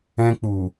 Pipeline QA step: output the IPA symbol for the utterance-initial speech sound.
ɛ̃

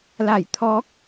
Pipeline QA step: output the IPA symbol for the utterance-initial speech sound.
l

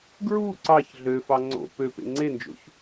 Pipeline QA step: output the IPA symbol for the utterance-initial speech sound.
ɡ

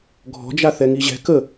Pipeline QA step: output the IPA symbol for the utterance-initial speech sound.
ɡʱ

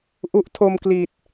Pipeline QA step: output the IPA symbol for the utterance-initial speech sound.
ʔ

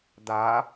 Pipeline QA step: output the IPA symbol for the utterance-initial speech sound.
d̪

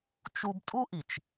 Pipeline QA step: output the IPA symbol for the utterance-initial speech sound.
t͡ʃ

